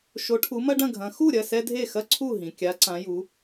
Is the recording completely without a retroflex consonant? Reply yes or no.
no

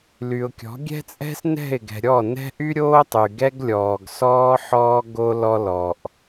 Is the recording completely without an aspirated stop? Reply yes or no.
yes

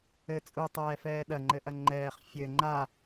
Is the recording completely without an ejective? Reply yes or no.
no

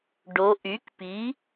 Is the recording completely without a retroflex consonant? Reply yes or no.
no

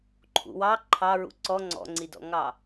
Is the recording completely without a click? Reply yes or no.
no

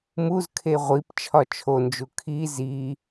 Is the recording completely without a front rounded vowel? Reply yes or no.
yes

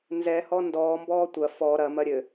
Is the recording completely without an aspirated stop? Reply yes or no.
yes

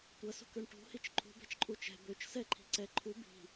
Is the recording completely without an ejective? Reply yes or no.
no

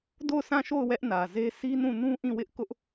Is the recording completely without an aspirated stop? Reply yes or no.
yes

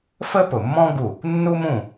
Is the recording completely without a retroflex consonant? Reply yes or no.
yes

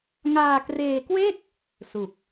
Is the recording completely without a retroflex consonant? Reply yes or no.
yes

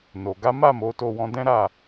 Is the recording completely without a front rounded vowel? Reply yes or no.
yes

